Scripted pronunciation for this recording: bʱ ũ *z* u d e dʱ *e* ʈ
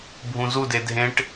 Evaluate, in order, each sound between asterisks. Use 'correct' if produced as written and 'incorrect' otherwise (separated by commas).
correct, incorrect